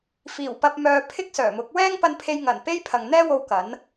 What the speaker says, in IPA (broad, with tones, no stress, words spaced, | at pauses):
fiː˨˩wpɐ˧p̚ mœː˧ pʰɪ˥k̚sœː˨˩mʊ˨˥k̚ wɛː˥ŋpɐ˧npʰe˧jŋɐ˨˩n pe˥j pʰɐ˨ŋn̪ɛː˥wo˧w kɐ˨˥n